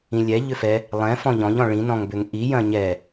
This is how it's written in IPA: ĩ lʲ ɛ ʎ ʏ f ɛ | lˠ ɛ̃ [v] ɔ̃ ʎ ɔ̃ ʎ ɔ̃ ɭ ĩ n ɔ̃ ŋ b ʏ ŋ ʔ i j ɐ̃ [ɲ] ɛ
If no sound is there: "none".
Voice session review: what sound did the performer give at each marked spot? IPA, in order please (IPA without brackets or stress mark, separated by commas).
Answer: f, ɲ